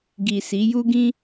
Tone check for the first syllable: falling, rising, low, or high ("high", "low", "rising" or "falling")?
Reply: low